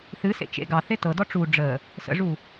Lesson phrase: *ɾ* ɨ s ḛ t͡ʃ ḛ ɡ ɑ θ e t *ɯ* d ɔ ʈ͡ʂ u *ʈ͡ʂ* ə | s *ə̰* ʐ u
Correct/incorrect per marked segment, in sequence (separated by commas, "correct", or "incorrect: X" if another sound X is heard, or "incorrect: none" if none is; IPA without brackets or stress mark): incorrect: θ, incorrect: ɤ, incorrect: ɖ͡ʐ, correct